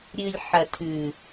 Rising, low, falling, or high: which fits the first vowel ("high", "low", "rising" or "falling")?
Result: low